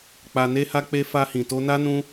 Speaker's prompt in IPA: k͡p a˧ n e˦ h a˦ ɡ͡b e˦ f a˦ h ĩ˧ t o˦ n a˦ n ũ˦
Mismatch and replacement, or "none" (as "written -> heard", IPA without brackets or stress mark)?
ɡ͡b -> k͡p